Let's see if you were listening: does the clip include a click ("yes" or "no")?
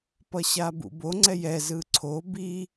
yes